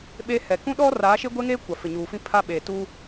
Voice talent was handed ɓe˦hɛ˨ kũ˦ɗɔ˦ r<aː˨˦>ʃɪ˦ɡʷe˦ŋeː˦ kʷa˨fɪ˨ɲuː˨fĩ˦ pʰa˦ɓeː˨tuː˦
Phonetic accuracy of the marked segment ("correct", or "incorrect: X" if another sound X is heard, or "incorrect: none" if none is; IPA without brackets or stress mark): correct